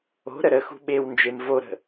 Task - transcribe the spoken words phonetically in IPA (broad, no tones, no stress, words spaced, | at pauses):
o̤ ɾəɾəxṳ ɓew nd͡ʒemvoɾə̤